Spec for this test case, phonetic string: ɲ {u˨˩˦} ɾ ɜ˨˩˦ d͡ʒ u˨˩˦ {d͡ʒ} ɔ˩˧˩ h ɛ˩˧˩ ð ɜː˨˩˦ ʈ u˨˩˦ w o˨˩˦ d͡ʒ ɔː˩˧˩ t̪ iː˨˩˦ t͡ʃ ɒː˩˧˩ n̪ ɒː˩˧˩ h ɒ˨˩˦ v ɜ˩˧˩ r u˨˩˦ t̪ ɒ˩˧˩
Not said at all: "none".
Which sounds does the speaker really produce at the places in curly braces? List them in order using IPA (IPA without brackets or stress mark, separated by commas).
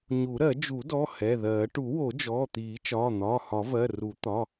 u˨˩˦, d